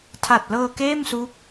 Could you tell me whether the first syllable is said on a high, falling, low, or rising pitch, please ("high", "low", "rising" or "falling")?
low